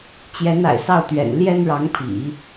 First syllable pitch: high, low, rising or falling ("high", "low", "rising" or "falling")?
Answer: rising